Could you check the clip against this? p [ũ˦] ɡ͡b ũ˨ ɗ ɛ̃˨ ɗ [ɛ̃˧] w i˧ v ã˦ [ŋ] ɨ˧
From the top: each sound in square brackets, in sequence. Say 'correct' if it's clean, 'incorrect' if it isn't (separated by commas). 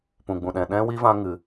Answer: incorrect, correct, correct